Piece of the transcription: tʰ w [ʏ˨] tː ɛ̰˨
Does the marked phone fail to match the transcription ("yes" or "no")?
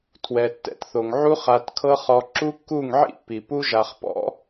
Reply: yes